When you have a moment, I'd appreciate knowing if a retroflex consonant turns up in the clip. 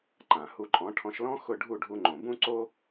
yes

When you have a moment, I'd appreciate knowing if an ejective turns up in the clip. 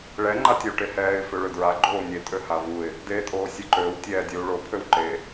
yes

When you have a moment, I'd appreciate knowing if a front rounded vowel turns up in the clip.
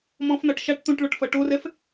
no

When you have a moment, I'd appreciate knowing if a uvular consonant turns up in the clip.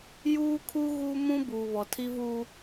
no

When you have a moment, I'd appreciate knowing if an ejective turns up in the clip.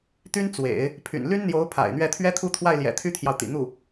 no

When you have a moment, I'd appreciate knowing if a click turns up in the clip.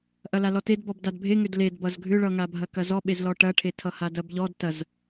no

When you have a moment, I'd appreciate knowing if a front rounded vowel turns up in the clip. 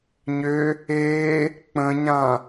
yes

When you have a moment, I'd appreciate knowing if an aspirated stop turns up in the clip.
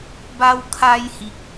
yes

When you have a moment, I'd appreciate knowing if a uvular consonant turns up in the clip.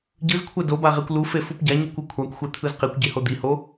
yes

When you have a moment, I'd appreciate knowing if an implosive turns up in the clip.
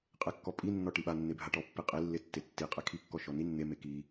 yes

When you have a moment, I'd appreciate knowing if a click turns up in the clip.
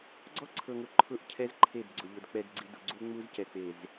yes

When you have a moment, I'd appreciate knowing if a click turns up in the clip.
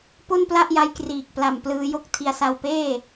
no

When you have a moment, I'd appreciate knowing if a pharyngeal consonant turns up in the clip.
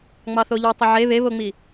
yes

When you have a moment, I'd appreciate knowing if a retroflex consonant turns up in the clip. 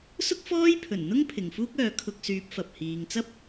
no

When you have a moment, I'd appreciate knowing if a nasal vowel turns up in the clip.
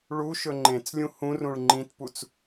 yes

